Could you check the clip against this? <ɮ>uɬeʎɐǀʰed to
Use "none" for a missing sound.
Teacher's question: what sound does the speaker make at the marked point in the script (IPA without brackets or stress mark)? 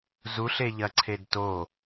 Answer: z